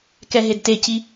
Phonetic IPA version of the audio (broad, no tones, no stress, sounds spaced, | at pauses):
k ɛ ɦ e d t e c i